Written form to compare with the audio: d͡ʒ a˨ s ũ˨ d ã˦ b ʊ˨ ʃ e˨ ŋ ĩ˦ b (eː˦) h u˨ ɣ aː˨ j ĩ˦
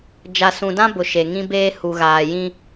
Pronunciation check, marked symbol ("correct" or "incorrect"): correct